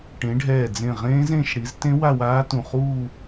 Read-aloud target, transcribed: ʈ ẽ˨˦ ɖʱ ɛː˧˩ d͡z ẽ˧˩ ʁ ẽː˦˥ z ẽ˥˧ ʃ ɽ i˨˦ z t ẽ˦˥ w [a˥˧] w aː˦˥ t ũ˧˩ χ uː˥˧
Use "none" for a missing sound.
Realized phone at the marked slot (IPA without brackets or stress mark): a˥˧